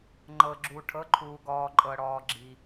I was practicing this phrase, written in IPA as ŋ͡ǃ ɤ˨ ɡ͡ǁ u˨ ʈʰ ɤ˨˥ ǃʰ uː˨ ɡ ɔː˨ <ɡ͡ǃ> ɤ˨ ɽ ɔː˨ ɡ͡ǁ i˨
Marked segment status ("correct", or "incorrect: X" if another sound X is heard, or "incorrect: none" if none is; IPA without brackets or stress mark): incorrect: ǃʼ